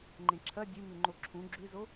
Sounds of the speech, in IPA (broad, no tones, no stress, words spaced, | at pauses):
ŋ͡ǃẽǁʰɐ dʲɨmʉ ŋ͡ǃoǁʰũ ɡ͡ǁʉzo